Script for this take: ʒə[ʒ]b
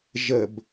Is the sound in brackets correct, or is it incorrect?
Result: incorrect